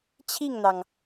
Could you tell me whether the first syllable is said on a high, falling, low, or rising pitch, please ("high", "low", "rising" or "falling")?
falling